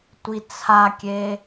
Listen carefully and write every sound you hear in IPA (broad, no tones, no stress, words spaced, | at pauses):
tʷit͡sʰakʲe